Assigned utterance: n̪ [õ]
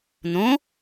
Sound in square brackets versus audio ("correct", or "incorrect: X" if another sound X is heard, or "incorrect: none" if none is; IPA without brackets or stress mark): correct